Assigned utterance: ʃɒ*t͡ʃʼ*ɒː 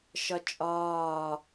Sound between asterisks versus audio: correct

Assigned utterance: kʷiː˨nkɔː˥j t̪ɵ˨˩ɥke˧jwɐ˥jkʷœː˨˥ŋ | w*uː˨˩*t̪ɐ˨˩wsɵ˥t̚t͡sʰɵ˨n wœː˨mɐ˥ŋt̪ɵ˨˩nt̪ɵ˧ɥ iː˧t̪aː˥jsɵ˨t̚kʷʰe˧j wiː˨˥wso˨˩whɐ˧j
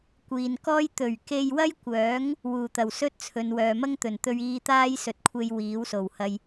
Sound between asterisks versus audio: correct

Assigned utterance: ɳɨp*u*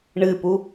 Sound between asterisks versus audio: correct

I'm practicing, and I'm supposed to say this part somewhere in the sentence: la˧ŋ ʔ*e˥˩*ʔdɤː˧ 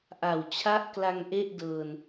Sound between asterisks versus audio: correct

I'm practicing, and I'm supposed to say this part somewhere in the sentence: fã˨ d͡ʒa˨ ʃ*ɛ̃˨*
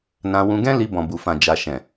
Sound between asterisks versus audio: correct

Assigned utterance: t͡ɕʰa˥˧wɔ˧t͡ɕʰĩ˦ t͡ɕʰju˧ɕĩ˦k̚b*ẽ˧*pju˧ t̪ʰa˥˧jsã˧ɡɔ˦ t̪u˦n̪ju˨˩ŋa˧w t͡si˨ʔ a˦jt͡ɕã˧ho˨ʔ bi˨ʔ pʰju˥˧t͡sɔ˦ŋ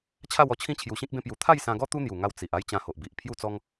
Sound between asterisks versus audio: incorrect: ẽ˦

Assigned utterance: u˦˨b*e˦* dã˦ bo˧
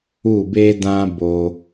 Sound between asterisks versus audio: correct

